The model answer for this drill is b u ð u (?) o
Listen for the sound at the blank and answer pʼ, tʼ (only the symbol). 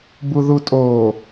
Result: tʼ